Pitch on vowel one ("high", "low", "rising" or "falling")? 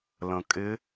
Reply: low